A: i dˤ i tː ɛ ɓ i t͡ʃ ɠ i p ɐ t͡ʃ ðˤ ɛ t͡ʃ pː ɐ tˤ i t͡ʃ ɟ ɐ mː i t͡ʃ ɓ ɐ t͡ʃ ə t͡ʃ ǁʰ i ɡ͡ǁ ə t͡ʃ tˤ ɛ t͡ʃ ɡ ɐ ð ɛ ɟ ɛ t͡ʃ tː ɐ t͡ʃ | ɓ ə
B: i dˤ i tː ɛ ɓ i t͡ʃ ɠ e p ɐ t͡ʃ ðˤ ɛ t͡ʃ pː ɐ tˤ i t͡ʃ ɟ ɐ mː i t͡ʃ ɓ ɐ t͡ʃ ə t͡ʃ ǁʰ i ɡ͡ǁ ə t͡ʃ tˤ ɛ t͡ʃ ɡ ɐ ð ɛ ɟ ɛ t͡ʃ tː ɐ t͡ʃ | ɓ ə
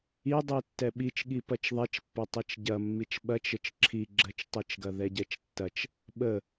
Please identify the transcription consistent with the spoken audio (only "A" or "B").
A